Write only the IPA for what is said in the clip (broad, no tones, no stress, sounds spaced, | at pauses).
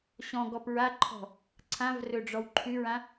ɕ ɔ̃ ɡ ɔ p ɹ a ǃʰ ɔ̤ | ǀʰ ã v r ɵ ɖ͡ʐ ɔ w ǃʰ ʉ ɹ ã